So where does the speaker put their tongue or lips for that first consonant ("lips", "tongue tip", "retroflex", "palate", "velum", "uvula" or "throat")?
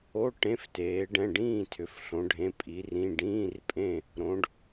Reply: retroflex